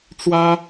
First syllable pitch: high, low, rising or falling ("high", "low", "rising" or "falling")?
high